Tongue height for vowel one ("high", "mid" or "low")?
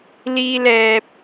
high